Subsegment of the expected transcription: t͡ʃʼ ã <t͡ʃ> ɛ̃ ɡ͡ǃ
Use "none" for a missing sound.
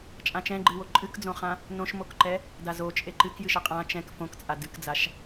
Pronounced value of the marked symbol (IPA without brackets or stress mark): t͡ʃ